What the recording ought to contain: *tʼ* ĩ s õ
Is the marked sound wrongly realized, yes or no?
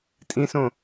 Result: no